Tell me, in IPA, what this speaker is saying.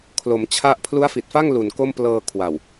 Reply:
kʰ l o˩˦ m t͡ɕʰ a˦˥ ʔ pʰ l u˦˥ a̯ f i˨˩ t̚ f a˥˩ ŋ l u˨˩ n k o˥˩ m p l ɤː˧ kʰ w a˨˩ w

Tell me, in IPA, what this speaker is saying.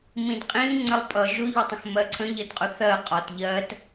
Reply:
m ĩ d qʼ ĩ ŋ͡ǀ ə lˠ pʼ ʌ ʒ ʊ ʎ ʊ tˤ ə̃ x m ɜ ǀʰ ə̃ ʎ ə d qʼ ʊ θ ɜ qʼ ɒ t ʎ ɜ t

